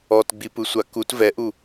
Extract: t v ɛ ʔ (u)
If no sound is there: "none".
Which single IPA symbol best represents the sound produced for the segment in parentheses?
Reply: u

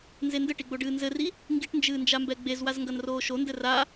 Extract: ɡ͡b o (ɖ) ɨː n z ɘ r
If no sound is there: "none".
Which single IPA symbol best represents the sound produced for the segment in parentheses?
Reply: ɖ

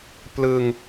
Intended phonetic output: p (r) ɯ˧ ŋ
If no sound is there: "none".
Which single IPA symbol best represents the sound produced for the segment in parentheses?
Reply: l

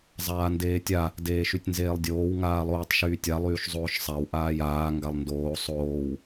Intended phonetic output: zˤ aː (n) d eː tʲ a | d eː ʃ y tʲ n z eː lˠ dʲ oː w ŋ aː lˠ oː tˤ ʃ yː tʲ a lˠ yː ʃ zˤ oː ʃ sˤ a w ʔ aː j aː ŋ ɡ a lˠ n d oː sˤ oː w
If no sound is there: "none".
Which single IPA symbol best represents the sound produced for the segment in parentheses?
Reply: n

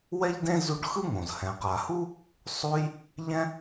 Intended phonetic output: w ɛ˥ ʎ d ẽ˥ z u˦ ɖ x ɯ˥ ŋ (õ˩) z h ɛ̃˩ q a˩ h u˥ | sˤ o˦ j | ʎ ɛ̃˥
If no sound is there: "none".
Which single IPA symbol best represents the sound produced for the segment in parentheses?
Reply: õ˩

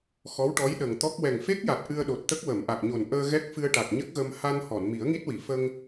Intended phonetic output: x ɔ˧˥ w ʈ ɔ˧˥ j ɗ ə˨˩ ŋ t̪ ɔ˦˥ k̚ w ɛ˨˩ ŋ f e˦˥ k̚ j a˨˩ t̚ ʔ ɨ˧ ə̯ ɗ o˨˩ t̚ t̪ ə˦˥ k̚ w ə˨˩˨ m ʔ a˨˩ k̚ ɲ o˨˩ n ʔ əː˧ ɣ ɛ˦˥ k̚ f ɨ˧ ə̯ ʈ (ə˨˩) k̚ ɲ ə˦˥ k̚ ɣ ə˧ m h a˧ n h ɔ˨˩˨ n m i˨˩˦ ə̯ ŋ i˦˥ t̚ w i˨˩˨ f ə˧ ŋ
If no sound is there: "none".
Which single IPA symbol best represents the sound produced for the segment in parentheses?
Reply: a˨˩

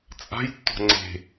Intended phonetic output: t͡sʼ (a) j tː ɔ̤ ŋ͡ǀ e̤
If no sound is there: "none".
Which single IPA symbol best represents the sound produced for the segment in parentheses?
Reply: a̤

